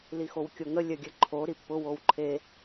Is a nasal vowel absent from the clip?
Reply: yes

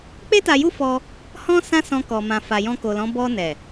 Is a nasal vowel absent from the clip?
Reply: no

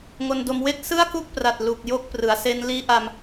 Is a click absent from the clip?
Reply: yes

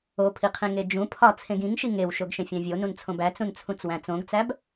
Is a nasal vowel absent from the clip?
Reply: no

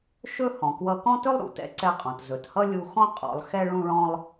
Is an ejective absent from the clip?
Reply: no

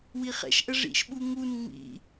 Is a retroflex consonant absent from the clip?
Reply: no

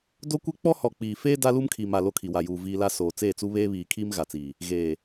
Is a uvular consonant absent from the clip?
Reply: yes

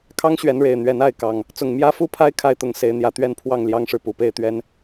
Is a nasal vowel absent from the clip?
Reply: yes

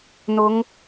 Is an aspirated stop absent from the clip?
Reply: yes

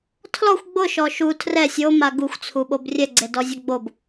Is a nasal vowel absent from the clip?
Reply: yes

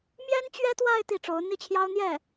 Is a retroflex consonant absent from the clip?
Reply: no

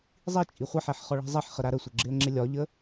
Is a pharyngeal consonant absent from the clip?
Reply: no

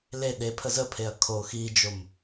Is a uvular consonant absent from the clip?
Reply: yes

